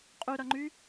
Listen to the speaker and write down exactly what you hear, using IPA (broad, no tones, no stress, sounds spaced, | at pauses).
qʼ y ɾ ʌ ŋ͡ǃ y